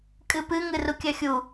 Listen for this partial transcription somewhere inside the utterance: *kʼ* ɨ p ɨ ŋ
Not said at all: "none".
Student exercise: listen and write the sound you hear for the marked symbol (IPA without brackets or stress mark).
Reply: kʼ